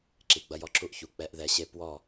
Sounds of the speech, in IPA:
ǁ i˨ ɡ͡b ɐ˧ j ɔ˧ ǁ u˧ ʔ ç u˨ k͡p ɛ˦ ʔ ð ɛ˧ ɕ e˦ p w ɔ˦˨

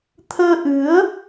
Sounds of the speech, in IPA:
t̪ʰ əː˧ ʔ ɨ˨˦ ə̯

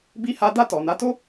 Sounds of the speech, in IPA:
b i˦ h a˦ d a˦˨ t ɔ˨ n a˨˦ t o˦

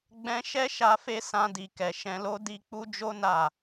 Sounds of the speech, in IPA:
ɡ͡b ɛ̃˧ ʃ ɛ˦ ʃ a˧ f e˦ s ã˧ d i˨ k ɛ˨ ʃ ɛ̃˧ l o˦ d i˧ k͡p u˦ d͡ʒ o˦ n a˦˨

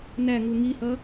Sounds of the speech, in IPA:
n æ ŋ u ŋ i h ʌ

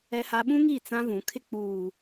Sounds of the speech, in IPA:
ɛ˦ h a˦ ɓ ũ˦ ŋ i˦˨ t͡s ã˦ v ũ˨˦ kʰ ɪ˦ k͡p uː˨

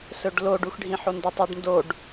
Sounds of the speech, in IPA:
s ɵ ɖ l o ɖ u x ɖʱ ĩ ħ o n d e tˤ ɨ ɖ n d o ɖ

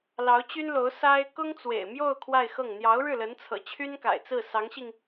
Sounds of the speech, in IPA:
l ɑ˧˥ ʊ̯ t͡ɕ y˥ n l o˧˥ ʊ̯ s a˥ ɪ̯ k ʊ˥ ŋ t͡s w ḛ˨˩ ɪ̯ m j o˥˧ ʊ̯ kʰ w a˥˧ ɪ̯ x ɤ˥˩ ŋ n̪ j ɑ˧˥ ʊ̯ ɻ ɻ̩˥˩ l ə˧˥ n t͡sʰ ɤ̰˨˩ t͡ɕʰ y˥ n k a̰˨˩ ɪ̯ t͡s ɹ̩˥˩ s ɑ˧˥ ŋ ɕ i˧ ŋ

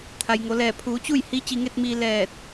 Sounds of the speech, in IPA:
t̪ʰ a˩ j ŋ o˩˧ l ɛː˧˩ pʰ uː˩˧ t͡ɕ u˥˨ j h i˧˥ t͡ɕ i˧ ŋ e˥˨ t̚ m iː˧ l ɛː˧˩ t̚

